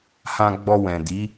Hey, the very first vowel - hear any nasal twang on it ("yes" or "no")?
yes